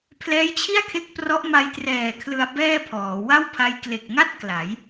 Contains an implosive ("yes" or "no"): no